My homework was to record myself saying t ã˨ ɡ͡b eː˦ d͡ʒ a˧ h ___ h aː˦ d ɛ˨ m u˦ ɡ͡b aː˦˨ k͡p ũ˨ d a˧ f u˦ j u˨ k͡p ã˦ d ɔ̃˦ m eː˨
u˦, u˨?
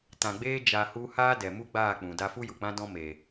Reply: u˦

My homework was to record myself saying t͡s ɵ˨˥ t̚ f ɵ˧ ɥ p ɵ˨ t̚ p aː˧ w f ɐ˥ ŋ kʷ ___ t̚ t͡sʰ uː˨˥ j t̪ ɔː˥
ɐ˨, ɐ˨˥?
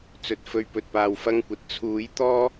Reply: ɐ˨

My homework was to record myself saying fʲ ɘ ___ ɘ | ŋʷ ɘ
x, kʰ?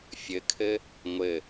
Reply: kʰ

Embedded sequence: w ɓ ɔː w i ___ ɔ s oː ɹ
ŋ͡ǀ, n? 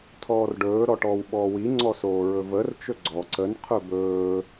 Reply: ŋ͡ǀ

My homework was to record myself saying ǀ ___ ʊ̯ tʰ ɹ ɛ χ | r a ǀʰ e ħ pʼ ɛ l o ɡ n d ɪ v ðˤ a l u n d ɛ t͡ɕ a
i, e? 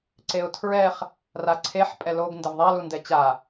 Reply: e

